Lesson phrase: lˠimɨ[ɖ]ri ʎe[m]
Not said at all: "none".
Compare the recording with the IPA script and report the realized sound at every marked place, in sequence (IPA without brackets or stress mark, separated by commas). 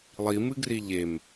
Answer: ɡ, m